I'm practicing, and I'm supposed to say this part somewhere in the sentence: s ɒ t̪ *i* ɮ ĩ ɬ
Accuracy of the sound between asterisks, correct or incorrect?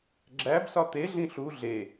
incorrect